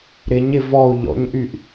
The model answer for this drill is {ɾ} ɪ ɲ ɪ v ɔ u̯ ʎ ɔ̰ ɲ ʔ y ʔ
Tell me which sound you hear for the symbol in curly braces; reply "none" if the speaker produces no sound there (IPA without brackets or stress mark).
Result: ɾ